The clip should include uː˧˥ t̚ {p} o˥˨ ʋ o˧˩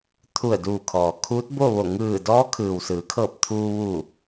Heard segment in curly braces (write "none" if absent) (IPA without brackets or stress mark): b